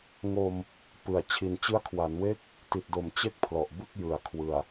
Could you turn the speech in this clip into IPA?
ŋ o˧ m | p ɯ˨˩ a̯ t͡ɕʰ i˨˩ n t͡ɕ ɯ˦˥ a̯ kʰ w a˩˦ n w e˦˥ k̚ | t i˨˩ t̚ d o˩˦ m t͡ɕ e˥˩ k̚ pʰ l ɔ˨˩ ʔ b ɯ˥˩ k̚ j ɯ˨˩ a̯ kʰ w ɯ˨˩ a̯

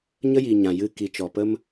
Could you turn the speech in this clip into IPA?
ɲ ə˦ j iː˨ ɲ ã˨ j ɨ˧ k i˨ t͡ʃ ɔ˨ p ə˦ m

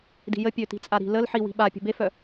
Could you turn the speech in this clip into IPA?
d i̤ j ə pʲ ø t i̤ t͡sʼ a ɾ i̤ l ə l ħ i w i̤ ɓ a pʲ ə̤ b e f œ

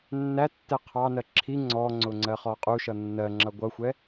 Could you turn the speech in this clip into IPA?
nː æ tː ɛ qʰ ɑ n ɜ ǁʰ i ŋ͡ǀ ɔ ŋ͡ǀ ʊ ŋ͡ǀ ɜ χ ɔ qʼ u ʃ ʌ nː ɜ ŋ͡ǁ ʌ ɡʷ ʌ xʷ ɛ

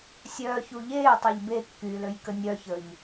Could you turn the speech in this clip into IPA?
sʲ œː ç u ʎ eː tˤ e ʎ b e kː yː l ø j k ə nʲ œ ç ə ʎ

